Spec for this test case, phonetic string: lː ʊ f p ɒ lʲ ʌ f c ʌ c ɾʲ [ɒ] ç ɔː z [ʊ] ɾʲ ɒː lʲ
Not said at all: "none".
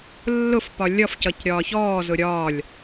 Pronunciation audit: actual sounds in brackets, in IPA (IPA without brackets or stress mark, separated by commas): ɒː, ʊ